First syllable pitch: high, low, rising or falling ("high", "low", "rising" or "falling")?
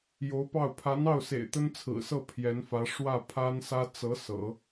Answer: rising